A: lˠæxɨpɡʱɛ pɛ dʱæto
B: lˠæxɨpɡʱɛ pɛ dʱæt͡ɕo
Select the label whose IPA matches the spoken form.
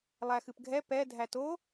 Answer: A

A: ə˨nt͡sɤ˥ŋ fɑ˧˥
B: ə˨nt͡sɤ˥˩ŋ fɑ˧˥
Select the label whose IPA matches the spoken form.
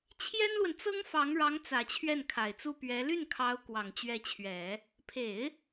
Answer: A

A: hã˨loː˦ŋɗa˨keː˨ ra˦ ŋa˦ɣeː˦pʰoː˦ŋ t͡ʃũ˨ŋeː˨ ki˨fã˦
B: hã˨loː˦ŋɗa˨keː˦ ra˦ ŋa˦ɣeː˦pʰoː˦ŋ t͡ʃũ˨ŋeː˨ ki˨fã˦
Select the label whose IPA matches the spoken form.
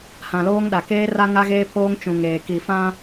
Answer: B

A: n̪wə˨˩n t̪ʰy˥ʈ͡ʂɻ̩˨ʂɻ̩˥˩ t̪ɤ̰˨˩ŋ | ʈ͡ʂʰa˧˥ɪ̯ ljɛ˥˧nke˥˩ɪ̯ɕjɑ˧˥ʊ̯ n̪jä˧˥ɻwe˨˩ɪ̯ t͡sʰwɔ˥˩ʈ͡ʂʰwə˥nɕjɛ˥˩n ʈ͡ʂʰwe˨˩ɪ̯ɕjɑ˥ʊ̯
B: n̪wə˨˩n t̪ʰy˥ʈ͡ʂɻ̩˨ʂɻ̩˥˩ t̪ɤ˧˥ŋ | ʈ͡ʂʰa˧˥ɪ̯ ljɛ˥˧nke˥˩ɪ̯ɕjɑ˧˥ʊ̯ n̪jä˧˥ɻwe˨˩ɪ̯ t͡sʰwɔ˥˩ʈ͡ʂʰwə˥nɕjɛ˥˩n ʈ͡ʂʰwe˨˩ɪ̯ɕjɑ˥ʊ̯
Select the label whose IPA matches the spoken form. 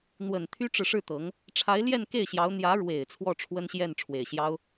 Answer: B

